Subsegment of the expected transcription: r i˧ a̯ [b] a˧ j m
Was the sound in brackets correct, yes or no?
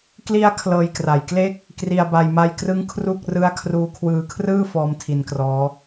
yes